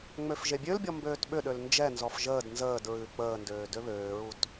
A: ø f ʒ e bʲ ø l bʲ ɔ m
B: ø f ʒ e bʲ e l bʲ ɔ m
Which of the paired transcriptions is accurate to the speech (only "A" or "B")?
A